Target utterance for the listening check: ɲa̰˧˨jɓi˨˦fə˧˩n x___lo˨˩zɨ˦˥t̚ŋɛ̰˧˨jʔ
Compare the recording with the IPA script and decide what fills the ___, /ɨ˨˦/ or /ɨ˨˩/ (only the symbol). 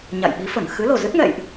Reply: ɨ˨˦